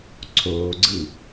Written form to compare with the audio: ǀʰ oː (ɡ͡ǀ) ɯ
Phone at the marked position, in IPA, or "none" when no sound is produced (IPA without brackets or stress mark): ɡ͡ǀ